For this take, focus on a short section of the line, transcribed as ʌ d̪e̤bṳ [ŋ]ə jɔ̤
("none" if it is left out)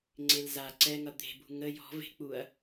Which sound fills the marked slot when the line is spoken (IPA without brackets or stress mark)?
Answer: ŋ